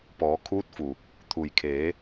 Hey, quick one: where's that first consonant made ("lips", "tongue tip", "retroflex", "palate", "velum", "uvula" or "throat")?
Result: lips